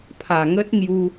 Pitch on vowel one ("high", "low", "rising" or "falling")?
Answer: low